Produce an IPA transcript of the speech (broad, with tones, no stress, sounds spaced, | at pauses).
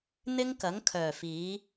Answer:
n̪ ɪ˥ ŋ k ɐ˨˥ ŋ kʰ œː˨˩ f iː˨˥